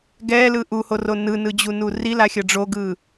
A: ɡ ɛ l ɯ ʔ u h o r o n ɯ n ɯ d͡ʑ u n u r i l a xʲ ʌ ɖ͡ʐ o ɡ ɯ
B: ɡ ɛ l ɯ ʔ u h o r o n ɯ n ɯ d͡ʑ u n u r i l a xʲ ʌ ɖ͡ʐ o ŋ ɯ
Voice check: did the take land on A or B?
A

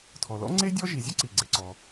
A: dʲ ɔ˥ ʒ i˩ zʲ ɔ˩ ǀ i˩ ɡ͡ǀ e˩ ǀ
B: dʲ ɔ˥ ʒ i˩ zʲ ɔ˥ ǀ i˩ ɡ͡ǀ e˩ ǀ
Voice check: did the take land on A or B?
B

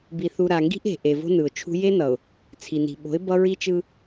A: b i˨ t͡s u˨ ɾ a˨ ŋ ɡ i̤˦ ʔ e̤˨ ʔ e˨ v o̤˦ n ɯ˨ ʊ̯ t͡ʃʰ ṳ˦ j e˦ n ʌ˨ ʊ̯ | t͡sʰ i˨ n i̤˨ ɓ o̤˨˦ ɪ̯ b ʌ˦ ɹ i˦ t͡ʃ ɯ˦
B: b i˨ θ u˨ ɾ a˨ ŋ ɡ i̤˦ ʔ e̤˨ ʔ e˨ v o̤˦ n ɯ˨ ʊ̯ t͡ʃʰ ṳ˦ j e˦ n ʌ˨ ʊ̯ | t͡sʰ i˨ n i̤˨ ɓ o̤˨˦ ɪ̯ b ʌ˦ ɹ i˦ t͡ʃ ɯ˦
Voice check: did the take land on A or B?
B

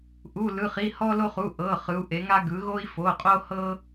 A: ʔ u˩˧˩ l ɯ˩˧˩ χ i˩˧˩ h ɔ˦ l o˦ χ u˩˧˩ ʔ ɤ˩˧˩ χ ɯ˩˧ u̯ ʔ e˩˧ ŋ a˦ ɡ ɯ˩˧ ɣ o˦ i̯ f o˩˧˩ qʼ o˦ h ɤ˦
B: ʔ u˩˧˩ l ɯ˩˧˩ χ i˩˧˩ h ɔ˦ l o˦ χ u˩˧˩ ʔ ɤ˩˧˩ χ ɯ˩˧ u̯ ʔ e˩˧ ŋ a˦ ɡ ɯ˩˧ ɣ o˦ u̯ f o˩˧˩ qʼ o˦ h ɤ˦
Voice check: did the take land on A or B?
A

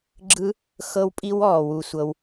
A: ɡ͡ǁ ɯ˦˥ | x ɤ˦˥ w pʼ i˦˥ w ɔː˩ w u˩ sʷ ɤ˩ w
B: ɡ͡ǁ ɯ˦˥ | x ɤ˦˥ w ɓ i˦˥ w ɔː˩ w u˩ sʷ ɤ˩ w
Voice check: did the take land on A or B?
A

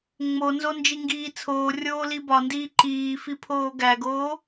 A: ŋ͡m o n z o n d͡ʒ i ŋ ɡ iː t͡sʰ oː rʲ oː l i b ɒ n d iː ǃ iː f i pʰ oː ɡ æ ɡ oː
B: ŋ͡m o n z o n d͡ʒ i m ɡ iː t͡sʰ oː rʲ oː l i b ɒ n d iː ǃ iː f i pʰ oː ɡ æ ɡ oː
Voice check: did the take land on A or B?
A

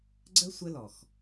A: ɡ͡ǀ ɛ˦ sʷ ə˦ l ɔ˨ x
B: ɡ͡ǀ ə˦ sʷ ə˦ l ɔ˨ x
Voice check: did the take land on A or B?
B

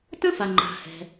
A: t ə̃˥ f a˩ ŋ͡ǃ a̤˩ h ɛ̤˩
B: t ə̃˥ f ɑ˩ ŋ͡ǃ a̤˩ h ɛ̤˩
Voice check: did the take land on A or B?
A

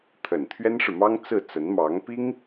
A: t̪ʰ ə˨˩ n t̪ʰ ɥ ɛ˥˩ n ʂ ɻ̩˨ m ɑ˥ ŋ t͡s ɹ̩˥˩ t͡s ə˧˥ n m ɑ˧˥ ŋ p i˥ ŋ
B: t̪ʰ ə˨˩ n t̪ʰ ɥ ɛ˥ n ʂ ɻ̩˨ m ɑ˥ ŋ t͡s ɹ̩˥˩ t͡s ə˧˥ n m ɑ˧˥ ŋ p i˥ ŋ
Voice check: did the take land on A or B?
B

